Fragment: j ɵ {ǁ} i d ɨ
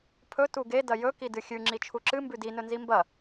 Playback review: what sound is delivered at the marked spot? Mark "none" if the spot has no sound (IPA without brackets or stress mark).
k